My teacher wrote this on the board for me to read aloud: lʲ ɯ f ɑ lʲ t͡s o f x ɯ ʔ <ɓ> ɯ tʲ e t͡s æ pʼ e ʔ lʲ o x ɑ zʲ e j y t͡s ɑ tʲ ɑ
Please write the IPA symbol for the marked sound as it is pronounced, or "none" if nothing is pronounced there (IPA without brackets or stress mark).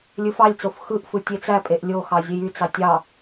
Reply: f